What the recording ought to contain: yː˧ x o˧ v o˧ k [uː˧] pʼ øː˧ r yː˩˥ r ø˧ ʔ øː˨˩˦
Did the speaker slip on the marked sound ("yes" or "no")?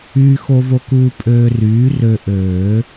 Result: no